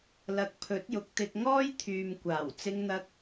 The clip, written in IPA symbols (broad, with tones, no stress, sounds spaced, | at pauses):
l ɐ˨ k̚ pʰ ɵ˨˥ t̚ j ʊ˨˥ k̚ t̪ ɪ˧ k̚ ŋ ɔː˥ j t̪ʰ yː˨ m kʷ aː˨˩ w t͡s ɪ˧ ŋ n̪ ɐ˧ k̚